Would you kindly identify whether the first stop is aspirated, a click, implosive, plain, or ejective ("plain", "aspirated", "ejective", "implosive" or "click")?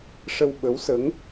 implosive